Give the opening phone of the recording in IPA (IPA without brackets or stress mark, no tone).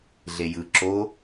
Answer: ɮ